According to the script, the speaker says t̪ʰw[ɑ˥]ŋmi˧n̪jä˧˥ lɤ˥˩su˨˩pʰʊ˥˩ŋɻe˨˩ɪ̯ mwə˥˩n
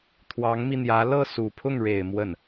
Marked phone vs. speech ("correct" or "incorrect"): incorrect